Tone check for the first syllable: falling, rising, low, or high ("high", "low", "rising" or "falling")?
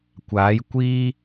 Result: rising